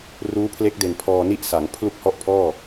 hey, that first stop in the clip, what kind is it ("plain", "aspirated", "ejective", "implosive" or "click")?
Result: aspirated